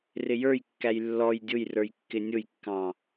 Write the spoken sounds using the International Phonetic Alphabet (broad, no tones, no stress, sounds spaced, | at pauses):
r ɪ j ə˞ j kː æ j lː ɔ j dʲ ʊ j r ə˞ j kː ɪ nʲ ʊ j kː ɑ̃